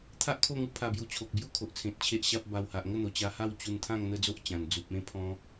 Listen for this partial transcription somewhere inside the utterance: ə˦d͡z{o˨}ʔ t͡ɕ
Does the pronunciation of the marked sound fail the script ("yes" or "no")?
yes